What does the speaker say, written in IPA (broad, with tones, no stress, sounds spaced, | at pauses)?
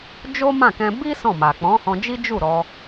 d͡ʒ o˦ m ã˦˨ k ɛ̃˧ b i˦ s ɔ̃˦˨ m a˨ k͡p ɔ̃˨˦ h ɔ̃˧ d͡ʒ i˦ d͡ʒ u˦˨ ɾ ɔ˧